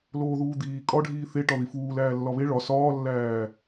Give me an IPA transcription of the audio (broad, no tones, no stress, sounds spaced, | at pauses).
l oː ð uː d̪ iː kʼ ɒ ɖʱ iː θ e ʈ ɒ ð i f uː l æː lː ɒ β e ɭ ɒ s ɒː lː æː